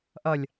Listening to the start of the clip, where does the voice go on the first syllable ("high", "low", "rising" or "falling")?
low